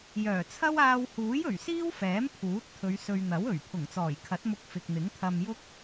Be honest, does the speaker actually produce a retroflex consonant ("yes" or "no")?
no